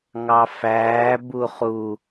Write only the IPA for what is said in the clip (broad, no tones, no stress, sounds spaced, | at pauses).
ŋ ɑ f æː b u χ u